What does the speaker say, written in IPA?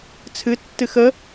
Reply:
t͡sʰ ɨ tː ɨ x ə

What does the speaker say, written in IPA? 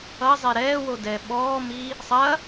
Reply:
ʌ zˤ ɛ ɾ ɛː w o d ɛː ɓ ɔː m i | sˤ ɐ

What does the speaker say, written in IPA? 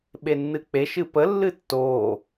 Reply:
ɓ e nː ɨ k͡p e ʃ ɨ p ə lː ɨ tː o

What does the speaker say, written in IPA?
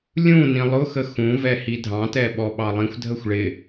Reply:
lʲ ũ n ĩ lˠ ʊ x ə x ũ v ɛ h i dʱ ɑ̃ t ɛ ɓ ɔ ɓ ɑ lˠ ĩ xʷ dʱ ə xʷ ɭ ɪ

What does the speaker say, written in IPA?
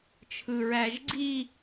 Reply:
t͡ʃʰ ɯ ɹ æ ʒ ɡ͡ǀ i

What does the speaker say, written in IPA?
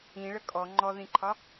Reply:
ĩ ɭ ə kʼ ɔ ŋ͡ǃ ɔ ð ĩ ǃʰ ɒ

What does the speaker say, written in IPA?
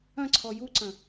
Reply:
ɐ̃ ǀʰ ɔ j u ǀ ɐ̃

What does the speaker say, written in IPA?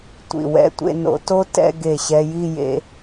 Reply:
tʷ ḭ˧˩ w ɛ̰˥˧ tʷ ḛ˥˧ n o̰˧ t o˥ t ɛ̰˥˧ ɡ e˧˩ ɕ ɛ˧ j i˥˧ j ḛ˧

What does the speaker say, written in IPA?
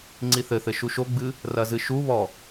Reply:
ŋ͡ǀ i θ ɘ θ ɘ ʃ u ʃ o ɡ͡b ɨ | r ɐ z ɨ ʃ u β ɔ

